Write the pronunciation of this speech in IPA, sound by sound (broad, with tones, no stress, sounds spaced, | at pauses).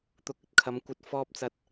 t̪ ʊ˨˥ k̚ ɵ˨˥ t̚ kʰ ɐ˨˧ m kʷ ɐ˧ t̚ f ɔː˧ p̚ t͡s ɐ˨˥ t̚